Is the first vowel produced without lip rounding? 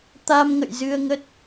yes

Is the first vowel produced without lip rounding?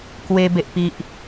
yes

